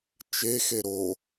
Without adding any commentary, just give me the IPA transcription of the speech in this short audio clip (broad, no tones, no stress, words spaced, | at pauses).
t͡ʃexe ɾo